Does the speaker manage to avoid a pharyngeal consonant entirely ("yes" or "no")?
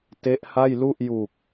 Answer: yes